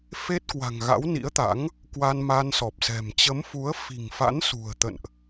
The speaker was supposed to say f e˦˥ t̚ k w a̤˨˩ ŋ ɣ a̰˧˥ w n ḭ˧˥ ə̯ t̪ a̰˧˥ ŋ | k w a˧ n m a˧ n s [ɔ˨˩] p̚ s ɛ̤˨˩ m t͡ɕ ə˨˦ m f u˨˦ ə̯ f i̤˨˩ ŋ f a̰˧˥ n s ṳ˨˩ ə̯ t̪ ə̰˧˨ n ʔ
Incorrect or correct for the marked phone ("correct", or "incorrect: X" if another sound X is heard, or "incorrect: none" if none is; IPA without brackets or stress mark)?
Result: correct